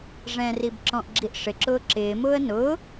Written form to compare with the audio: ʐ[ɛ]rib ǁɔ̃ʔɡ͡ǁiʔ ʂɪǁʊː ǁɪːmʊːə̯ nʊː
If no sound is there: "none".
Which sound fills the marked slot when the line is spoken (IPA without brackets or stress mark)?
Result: ɛ̃